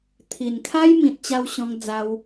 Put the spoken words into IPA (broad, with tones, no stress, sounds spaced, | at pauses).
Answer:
t̪ʰ i˨˩ n kʰ a˦ j m ĩ˨ t̚ t͡ɕ a˧ w ɕ ɔ̃˧ ŋ d͡z a˧ w